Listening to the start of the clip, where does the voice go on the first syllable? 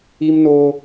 high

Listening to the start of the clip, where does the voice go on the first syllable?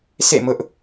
falling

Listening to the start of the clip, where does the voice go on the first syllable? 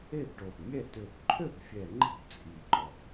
falling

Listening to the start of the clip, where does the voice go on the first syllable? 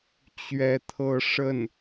high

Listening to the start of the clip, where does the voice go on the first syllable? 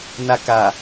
high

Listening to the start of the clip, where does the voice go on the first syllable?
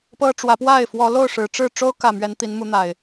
high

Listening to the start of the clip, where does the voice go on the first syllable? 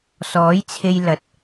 rising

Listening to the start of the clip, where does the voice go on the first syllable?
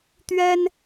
high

